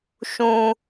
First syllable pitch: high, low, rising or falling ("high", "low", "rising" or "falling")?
high